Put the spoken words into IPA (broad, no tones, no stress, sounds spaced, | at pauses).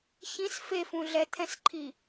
ç ĩ s f e f ũ ɮ ɛ t̪ʰ ɛ̃ s ǃʰ i